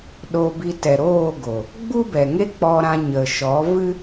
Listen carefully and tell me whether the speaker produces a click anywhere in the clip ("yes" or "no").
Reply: no